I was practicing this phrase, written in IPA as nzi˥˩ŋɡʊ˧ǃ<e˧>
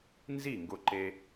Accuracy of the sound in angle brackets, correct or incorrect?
correct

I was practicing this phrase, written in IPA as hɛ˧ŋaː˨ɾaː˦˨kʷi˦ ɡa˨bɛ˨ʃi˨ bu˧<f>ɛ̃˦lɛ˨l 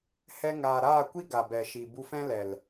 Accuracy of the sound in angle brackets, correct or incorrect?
correct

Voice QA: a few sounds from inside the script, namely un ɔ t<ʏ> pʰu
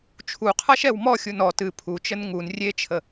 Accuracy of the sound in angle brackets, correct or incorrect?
incorrect: ɨ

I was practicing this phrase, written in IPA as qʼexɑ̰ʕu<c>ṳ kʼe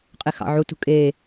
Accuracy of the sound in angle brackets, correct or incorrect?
incorrect: t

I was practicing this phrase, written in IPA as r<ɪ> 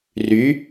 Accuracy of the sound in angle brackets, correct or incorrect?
incorrect: y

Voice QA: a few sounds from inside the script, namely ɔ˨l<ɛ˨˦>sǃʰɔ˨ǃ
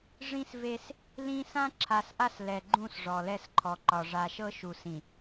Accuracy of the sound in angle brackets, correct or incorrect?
incorrect: ɛ˦˨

